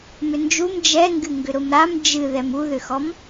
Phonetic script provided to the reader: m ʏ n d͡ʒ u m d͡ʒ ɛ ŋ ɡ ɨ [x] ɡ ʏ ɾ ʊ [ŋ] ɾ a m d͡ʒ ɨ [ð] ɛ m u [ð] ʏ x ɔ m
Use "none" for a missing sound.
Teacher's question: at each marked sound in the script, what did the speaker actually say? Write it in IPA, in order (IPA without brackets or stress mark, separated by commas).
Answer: ŋ, m, ð, ð